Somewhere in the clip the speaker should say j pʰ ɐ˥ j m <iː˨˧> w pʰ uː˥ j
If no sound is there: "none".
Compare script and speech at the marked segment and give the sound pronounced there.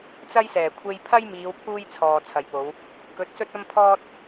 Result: iː˨˧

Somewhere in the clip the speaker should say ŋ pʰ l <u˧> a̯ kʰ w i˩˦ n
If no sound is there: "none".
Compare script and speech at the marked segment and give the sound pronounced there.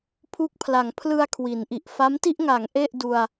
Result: ɯ˧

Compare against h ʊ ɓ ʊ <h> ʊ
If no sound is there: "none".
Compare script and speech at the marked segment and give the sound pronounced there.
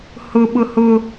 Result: h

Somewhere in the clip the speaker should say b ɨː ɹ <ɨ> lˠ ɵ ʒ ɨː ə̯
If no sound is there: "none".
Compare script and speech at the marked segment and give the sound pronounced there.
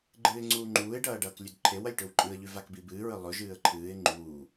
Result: ɨ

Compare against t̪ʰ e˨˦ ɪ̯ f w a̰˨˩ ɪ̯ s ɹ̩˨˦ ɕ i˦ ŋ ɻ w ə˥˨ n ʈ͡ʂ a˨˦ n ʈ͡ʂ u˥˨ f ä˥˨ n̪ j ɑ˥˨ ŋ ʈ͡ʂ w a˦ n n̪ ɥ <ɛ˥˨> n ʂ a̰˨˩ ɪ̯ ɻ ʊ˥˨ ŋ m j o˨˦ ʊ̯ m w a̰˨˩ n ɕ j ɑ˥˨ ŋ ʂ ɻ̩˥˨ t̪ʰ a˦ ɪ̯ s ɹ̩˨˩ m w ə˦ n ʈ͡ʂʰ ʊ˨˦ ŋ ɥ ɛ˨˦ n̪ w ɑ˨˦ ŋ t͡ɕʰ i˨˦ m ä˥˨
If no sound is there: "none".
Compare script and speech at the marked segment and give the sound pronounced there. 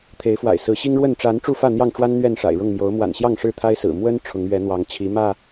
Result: ɛ˥˨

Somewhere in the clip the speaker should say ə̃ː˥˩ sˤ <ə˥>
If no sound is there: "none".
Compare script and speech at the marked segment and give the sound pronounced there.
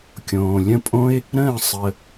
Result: ə˧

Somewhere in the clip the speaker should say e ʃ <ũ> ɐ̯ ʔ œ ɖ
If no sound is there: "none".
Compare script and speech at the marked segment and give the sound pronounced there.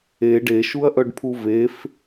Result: u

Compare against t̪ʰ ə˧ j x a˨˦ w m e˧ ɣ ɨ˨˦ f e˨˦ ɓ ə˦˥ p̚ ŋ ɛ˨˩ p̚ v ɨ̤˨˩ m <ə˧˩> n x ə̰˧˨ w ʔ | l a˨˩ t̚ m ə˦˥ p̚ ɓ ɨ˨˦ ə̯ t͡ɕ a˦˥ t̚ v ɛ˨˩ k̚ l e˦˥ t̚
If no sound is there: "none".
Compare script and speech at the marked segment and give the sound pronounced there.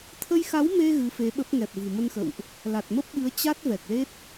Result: ə˧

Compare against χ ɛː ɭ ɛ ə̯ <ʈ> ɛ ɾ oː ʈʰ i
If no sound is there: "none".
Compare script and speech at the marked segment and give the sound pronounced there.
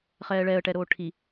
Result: ʈ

